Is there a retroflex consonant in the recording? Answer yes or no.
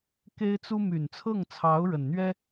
yes